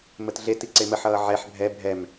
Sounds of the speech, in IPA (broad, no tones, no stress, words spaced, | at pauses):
mətɮeti ǀeməħʌː ʕɛħ bʱɛ bʱɛm